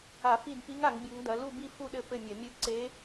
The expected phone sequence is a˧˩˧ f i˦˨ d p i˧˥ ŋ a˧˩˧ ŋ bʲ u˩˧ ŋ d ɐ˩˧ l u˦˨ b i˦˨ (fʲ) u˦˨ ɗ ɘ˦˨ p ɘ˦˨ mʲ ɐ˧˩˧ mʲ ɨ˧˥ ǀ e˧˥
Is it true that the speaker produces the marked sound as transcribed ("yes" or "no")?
no